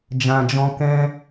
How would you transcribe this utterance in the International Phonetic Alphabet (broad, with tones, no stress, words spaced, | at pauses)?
d͡ʒã˨d͡ʒɔ̃˧ kɛ̃˧